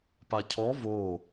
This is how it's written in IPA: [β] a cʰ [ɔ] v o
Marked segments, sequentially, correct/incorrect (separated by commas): incorrect, correct